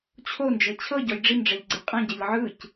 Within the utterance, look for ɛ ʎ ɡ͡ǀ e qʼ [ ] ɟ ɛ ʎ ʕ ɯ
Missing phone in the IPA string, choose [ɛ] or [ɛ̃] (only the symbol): ɛ̃